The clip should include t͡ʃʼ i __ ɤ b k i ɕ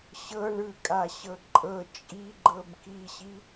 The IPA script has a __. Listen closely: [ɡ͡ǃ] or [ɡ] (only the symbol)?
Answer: ɡ͡ǃ